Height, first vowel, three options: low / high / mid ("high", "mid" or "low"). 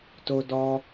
mid